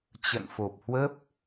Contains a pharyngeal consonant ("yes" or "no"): no